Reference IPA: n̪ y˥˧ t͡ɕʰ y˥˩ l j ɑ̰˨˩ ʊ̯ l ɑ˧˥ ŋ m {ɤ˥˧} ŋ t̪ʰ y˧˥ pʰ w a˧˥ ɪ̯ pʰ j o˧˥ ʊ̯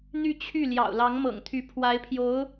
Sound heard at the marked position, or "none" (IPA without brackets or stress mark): ɤ̰˨˩